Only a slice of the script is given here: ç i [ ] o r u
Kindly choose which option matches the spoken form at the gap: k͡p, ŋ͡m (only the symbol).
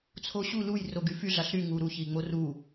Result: ŋ͡m